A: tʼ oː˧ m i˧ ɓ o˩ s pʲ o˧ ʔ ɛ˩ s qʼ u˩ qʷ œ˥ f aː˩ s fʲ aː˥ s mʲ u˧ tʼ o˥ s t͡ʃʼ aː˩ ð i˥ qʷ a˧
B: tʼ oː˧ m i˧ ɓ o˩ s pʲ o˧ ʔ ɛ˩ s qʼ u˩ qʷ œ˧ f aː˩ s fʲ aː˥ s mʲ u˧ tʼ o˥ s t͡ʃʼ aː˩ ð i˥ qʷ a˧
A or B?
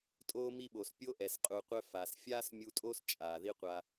B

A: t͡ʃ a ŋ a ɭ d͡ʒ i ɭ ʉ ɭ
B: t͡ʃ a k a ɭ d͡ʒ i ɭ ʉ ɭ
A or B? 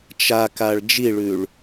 B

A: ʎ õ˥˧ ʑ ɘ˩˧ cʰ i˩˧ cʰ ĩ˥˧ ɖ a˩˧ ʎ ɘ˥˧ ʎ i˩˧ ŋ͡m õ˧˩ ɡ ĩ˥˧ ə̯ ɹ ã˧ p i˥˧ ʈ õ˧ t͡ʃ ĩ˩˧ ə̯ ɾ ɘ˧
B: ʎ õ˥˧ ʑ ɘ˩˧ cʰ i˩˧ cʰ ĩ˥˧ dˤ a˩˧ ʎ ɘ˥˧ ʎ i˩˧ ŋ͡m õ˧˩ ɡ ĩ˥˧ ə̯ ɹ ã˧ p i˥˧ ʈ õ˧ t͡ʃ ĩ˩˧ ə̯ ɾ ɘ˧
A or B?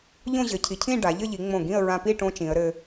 A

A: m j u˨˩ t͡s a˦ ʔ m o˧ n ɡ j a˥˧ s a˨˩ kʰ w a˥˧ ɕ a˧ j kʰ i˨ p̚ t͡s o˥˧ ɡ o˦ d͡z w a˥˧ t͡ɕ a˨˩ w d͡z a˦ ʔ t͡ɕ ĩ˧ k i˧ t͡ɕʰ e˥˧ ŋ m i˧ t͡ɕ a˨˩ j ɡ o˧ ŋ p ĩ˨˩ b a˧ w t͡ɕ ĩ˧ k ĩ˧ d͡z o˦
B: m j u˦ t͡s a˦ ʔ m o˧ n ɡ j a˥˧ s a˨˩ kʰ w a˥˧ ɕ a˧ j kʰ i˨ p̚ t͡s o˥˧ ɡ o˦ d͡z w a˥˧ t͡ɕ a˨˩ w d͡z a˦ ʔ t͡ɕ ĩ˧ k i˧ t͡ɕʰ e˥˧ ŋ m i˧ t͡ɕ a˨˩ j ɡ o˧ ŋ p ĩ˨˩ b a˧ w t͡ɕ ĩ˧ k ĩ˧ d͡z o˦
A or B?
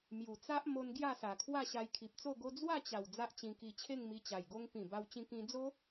A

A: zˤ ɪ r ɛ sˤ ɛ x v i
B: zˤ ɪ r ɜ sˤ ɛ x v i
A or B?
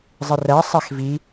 B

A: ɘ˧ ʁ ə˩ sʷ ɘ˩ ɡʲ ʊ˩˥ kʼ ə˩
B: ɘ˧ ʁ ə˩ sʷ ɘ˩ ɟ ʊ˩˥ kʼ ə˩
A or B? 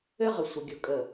A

